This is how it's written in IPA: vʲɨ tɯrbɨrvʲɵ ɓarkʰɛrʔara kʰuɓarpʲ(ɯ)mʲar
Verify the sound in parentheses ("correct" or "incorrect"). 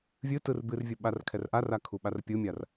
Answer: correct